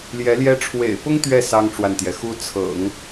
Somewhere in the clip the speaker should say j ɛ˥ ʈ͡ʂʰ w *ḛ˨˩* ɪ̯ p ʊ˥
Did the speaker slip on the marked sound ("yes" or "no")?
no